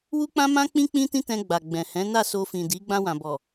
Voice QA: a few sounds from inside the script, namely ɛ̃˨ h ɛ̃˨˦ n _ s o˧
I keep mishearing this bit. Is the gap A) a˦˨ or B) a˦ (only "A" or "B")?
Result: A